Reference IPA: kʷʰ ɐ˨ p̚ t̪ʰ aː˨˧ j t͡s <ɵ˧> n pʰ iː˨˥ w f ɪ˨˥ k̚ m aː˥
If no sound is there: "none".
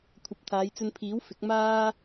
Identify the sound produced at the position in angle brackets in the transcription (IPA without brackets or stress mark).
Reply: ɵ˧